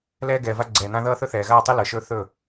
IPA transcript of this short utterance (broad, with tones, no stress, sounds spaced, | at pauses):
l ɛː˦ ɡ ɛː˨ v a˦ ɡ͡ǀ ɛː˨ n ã˦ ð ʌː˦ θ ɵ˦ θ ɛː˨ ɣ aː˦˨ tˤ ɪ˦ l ɤ˨ ʃ ɵː˦ θ ɵ˦˨